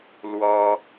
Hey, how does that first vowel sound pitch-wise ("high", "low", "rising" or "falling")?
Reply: high